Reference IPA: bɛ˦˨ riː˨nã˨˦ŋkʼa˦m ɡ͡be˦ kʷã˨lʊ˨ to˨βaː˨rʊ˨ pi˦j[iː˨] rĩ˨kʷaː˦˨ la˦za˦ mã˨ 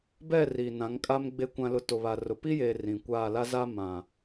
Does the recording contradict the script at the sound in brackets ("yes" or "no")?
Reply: yes